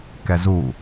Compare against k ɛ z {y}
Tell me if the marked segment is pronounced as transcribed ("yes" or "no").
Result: no